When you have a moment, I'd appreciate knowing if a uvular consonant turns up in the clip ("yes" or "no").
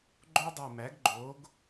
no